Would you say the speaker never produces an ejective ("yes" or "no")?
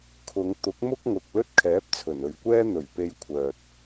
yes